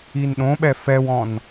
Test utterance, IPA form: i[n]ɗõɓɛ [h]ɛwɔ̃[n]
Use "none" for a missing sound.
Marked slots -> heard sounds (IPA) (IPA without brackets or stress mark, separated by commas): n, f, n